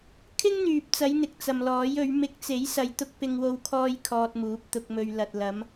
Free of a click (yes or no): yes